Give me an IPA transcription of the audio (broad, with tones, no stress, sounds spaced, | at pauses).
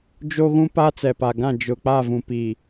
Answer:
d͡ʒ o˦ ɣ ũ˦ p a˦ t͡s ɛ˨ p a˨ ɡ ã˦˨ d͡ʒ ʊ˨ k͡p a˦˨ v ũ˨ p i˨